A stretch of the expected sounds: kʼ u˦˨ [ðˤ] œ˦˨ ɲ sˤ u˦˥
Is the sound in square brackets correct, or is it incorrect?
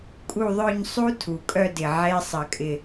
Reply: correct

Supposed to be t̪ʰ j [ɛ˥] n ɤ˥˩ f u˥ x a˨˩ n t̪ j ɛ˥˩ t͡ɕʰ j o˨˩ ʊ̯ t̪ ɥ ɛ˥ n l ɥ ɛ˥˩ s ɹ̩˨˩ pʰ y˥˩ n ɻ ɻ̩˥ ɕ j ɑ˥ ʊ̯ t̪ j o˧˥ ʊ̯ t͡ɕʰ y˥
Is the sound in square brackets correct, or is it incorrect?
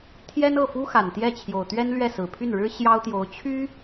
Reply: correct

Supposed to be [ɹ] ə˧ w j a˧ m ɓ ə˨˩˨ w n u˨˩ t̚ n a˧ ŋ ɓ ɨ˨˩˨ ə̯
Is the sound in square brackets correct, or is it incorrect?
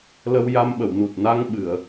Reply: incorrect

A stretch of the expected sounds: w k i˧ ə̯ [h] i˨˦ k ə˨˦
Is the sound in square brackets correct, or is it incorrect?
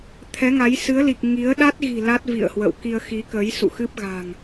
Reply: incorrect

